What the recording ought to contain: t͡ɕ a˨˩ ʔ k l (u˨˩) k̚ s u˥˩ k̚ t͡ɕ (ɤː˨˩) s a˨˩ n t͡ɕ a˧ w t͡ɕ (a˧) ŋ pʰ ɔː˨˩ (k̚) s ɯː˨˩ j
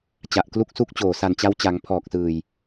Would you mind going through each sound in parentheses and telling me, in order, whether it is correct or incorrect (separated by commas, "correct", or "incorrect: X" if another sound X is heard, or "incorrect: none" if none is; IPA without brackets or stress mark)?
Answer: incorrect: u˥˩, incorrect: oː˨˩, incorrect: a˩˦, correct